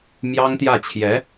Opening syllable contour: high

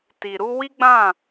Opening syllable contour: low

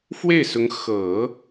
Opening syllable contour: falling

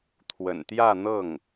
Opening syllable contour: low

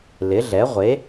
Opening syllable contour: rising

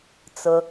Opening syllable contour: low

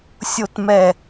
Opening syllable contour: low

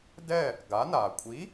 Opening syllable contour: falling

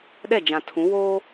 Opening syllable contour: falling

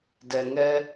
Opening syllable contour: low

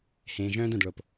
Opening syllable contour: low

